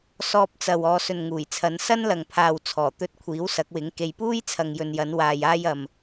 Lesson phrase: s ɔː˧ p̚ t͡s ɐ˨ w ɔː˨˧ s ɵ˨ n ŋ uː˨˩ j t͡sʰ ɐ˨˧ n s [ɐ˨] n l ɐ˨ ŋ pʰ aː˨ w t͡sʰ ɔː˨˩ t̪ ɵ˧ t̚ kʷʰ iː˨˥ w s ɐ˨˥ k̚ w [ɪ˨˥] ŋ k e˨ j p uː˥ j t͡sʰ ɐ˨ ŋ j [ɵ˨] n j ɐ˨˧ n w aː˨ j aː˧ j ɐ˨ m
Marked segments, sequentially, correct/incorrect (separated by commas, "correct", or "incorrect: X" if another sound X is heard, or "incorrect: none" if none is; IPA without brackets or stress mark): incorrect: ɐ˥, correct, correct